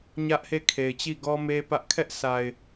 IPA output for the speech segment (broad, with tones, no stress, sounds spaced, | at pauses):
ɲ ä˦ ʔ h e˦˨ kʰ e˨ ɪ̯ t͡ɕ i˦˨ ɡ ɔ˦ m e˦ p ä˦ ʔ kʰ ɛ˦ ʔ s a˨ ɪ̯